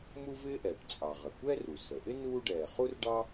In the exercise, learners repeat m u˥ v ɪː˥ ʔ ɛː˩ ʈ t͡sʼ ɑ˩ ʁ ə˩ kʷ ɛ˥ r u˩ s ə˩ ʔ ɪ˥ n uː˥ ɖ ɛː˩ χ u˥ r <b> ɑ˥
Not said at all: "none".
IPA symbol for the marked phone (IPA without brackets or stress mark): ɖ